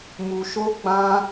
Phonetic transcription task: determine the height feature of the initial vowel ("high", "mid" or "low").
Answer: high